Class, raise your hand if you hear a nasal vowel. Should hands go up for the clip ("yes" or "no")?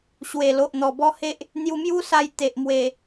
no